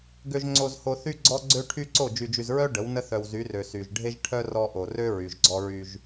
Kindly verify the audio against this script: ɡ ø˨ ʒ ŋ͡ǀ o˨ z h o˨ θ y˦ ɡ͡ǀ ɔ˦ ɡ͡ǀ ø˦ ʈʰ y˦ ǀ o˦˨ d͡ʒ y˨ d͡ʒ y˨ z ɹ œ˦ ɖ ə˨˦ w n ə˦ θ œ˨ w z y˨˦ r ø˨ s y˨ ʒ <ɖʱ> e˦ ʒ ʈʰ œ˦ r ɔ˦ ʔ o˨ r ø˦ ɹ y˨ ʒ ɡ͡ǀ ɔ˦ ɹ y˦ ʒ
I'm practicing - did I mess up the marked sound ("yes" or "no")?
no